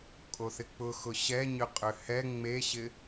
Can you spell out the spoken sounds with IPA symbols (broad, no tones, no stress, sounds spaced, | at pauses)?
kʼ o θ ɪ k͡p ʊ x ʊ ɕ ɛ ɲ ʏ qʼ ʏ h ɛ ŋ͡m e ɕ ɪ